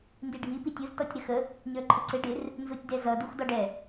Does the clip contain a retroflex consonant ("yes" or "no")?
yes